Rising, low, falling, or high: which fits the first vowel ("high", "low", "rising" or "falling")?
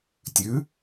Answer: rising